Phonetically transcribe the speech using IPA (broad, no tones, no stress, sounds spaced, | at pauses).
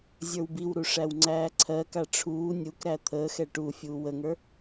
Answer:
zʲ ə˞ w b i w ɾ u ʂ æ w ŋ͡ǀ æː ǀʰ ɜ k a ʈ͡ʂʰ uː nʲ u k ɾ æ t̪ʰ əː x ɛ ʈ u fʲ uː w ə ŋ ə˞